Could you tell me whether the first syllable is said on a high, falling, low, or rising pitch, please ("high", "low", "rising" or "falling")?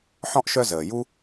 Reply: high